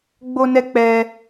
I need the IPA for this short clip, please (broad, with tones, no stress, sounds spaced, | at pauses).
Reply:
ɡ͡b o˦ n ɛ˦ k͡p ɛ˦